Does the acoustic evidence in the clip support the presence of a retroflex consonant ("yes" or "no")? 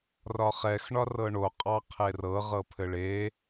yes